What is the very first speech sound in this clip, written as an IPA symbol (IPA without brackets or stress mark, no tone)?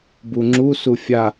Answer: b